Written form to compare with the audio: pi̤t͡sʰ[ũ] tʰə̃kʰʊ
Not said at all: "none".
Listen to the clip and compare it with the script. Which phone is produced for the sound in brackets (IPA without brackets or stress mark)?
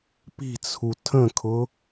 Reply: u